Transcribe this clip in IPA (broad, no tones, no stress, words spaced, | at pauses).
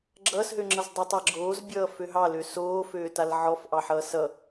ɡ͡ǁʌːsɦøŋ͡ǁʌz dˤʌtˤaɡ͡ǁoːzbʲʌː føɦɑlø soːføːtal ʕɔfʔɑħʌː sʌ